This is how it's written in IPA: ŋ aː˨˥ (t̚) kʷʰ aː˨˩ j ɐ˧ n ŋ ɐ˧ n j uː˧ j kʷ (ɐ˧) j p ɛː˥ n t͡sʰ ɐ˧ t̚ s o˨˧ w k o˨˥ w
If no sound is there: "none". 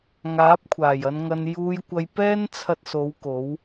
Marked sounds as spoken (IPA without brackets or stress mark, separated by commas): p̚, ɐ˧